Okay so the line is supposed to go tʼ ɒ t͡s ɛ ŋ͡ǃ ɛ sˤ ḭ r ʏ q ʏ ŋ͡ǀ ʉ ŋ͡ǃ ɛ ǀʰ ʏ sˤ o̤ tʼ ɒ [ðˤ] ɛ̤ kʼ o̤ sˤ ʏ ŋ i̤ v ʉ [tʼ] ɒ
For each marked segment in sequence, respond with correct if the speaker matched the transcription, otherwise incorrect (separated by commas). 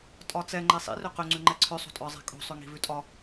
incorrect, correct